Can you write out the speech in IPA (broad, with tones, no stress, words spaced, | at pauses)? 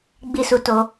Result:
ɡ͡bi˦su˧ to˧